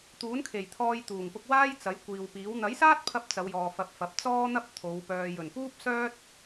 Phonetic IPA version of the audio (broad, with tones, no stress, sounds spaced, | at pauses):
t̪ uː˨˥ n kʰ e˨˩ j t̪ʰ ɔː˧ j t̪ uː˨˩ ŋ p ʊ˧ k̚ w aː˥ j t͡s ɐ˨˥ j kʷ iː˨ w p iː˨˥ w n̪ ɐ˨˥ j s aː˥ t̚ pʰ ɐ˧ p̚ t͡s ɐ˨˧ w j ɔː˨ f ɐ˧ p̚ f ɐ˨˥ p̚ t͡s ɔː˥ n̪ ɐ˥ p̚ t̪ʰ o˨˧ w p œː˨ j ɵ˨˩ n p uː˥ p̚ s œː˥ t̚